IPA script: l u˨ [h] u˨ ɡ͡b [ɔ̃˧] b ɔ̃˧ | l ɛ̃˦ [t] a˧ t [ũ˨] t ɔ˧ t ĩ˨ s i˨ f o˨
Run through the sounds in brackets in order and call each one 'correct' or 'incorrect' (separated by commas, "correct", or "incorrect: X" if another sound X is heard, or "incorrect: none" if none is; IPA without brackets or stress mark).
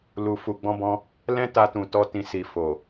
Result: incorrect: f, correct, correct, correct